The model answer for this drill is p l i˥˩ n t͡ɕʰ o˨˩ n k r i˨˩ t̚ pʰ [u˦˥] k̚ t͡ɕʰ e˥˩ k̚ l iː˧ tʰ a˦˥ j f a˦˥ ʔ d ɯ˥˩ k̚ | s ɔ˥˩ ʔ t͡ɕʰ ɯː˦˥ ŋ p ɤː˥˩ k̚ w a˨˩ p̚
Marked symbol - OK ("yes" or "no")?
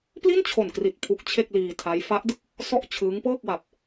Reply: yes